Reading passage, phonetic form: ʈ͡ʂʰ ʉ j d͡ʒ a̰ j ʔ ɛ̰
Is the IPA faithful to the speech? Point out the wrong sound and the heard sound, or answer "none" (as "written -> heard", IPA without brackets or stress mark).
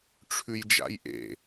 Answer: ɛ̰ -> ḛ